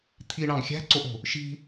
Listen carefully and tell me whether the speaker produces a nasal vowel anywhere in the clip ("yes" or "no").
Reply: yes